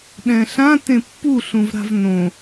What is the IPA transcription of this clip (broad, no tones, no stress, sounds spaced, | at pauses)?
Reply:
ɗ ɛ̃ ɬ ã t ẽ pː u ɬ ũ v ɾ a̤ v n õ